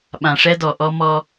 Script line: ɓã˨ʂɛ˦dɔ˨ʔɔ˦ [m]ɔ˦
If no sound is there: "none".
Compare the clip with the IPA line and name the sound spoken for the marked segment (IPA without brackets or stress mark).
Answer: m